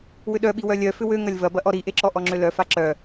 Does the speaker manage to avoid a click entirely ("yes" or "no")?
no